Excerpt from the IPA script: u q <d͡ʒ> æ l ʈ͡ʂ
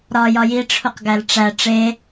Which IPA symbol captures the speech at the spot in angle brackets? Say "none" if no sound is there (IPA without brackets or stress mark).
ɡ